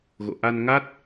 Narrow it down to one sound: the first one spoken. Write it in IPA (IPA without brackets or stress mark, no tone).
ɣ